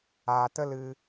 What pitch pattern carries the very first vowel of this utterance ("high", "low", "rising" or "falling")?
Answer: low